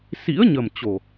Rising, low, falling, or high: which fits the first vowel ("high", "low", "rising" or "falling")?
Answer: rising